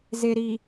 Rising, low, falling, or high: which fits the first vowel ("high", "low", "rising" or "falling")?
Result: low